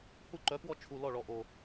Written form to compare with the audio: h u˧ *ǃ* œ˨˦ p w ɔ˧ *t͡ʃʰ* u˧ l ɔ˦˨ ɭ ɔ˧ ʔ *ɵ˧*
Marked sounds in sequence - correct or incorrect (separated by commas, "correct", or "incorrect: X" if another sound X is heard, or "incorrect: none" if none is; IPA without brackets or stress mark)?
correct, correct, incorrect: o˧